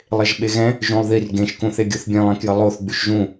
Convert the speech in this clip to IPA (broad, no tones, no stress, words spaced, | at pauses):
lˠeʒɓeɣɛ̃ | ʒũlˠðir ɡẽʃkũθ eɡʲoθbʲẽlˠẽ kjəlˠoθ ɡ͡byʃʒũ